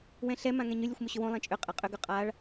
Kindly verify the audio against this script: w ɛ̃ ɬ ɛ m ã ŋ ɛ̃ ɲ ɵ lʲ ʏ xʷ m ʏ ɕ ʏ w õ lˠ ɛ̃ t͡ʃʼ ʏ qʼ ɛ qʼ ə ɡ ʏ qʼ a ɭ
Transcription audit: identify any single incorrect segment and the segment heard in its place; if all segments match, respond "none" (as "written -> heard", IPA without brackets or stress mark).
ə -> ʏ